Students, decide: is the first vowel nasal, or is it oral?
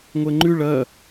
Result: oral